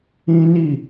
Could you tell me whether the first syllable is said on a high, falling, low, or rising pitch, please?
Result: high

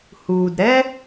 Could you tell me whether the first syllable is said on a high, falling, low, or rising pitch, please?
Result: low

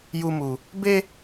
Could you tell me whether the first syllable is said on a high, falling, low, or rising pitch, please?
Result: high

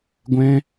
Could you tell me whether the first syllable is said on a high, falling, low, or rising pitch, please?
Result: high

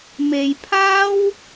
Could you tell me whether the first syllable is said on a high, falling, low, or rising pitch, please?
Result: low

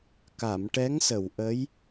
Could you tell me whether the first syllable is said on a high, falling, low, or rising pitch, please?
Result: low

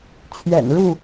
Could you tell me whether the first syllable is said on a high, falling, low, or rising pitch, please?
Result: low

